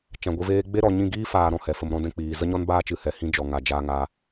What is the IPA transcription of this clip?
t͡ʃ ã˨ ɡʷ ɨ˧ v eː˦ ɡ͡b e˦ ɾ ɔ˨ ɲ ĩ˦˨ ɡ iː˦ f aː˨ ɾ ɔ̃˨ h ɛ˨ f ə˧ m ɾ ɔ̃˧ d ɛ̃˧ k͡p iː˨ z ə˦ ɲ ɔ˦ n b aː˦ t͡ʃ ɨ˨ h ɛ˨ h ĩ˦ d͡ʒ ɔ˨ ŋ a˨ d͡ʒ aː˧ ŋ a˧

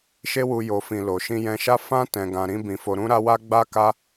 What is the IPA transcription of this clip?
ʃ e˦ w u˧ j o˨ f ĩ˨ l o˨ ʃ ĩ˧ j ɛ̃˧ ʃ a˦ f ã˦ t ɛ̃˧ ɡ ã˧ ɾ ĩ˦ b ĩ˧ f o˧ ɾ ũ˧ ɾ a˧ w a˧ ɡ͡b a˦ k a˦

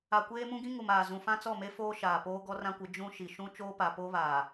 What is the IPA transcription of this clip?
a˨ kʷ eː˦ m ũ˦ ɡ ĩ˦ ŋ u˨ m aː˨ z ũ˨ f ã˦ t͡s ɔ˦˨ m e˦ f oː˦ ʃ aː˨ p oː˦ ɡ ɔ˦ r ã˦ kʷ ɪ˨˦ d͡ʒ ũ˦ ʃ i˨ ʃ ũ˦ t͡ʃ oː˦ p a˨ p o˦ β aː˨

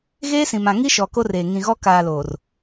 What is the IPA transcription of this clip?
ɣ eː˦ s ĩ˨ m ã˨ ŋ i˦ ʃ ɔ˨ k o˦ r eː˨ ŋ ĩ˨ ɣ ɔ˦ k aː˨ l oː˨ r

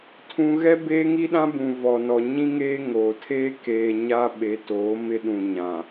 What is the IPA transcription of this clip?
tʰ ũ˦ ɣ ɛ˦ b eː˦ ŋ i˦ ɗ ã˦ b ũ˨ v ɔ˨ n ɔ˨ ɲ ĩ˦ ŋ eː˦ ŋ oː˨ tʰ eː˦ k eː˨ ɲ a˦ ɓ e˨˦ t oː˨˦ m ɪ˦ ɗ ũ˨ ɲ ã˨

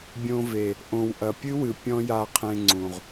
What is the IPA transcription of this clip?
bʲ õ˧ v e˨ | ʔ õ˨ w ʔ ɐ˨ pʲ ɨ˦ w ɨ˨ pʲ ɔ̃˦ j a˧ qʰ ẽ˧ ŋ͡ǀ ũ˨ ʁ

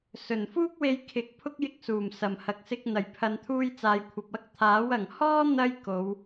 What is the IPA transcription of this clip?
s ɵ˨˩ n f uː˥ k̚ w e˧ j kʰ ɪ˨˥ k̚ pʰ ʊ˥ k̚ j ɪ˧ k̚ s uː˨˩ m s ɐ˨˩ m h ɐ˨ k̚ s ɪ˧ k̚ n̪ ɐ˨˩ j pʰ ɐ˨ n t̪ʰ uː˧ j t͡s aː˨ j kʷʰ ɐ˨ p̚ ɐ˧ k̚ t̪ʰ aː˨˥ w ɐ˨˩ ŋ h ɔː˥ n̪ ɐ˥ j k o˨˧ w

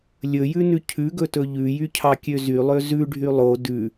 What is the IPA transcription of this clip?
lʲ ɵ j ʉ n ʉ cʰ ʉ ɡ ɵ t ɵ ʎ ʉ j y cʰ ɑ kʲ ø z y lˠ ø z ʉ ɖʱ y lˠ o d ʉ

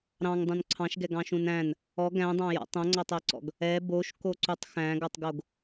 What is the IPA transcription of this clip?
ɾ ɑ̃ ŋ dˤ ũ n ǀʰ ɑ̃ ʃ ɡ ɛ ɡ ɑ̃ ʃ ũ n æ̃ n | ɔ ɡ æ̃ dˤ ɑ̃ j ɔ̰ tˤ õ ŋ͡ǀ ɑ tˤ æ ǀ ɔ̰ ɡ | ɛ b o ʃ k o ǀ u tˤ x æ̃ ɡ ɔ tˤ ɡ o ɡ

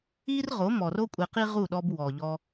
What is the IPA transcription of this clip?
i˦ r ʁ o˨˦ m ɔ˨ r o˦ kʷʼ e˧ q i˦ ʁ u˦˨ ɗ ɔ˧ b w ɔ˨ ʎ ɔ˧

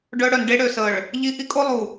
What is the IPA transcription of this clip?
ɖ œ˦ ɽ œ˨ n ɖ e˦ ɽ ø˨ s ə˨ ɭ | ʎ i˦ ʔ i˦ kʼ o˦ lˠ u˨

